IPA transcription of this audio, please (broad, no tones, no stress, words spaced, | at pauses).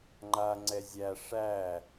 ŋ͡ǃaŋ͡ǀɛ zʲæ ʂæ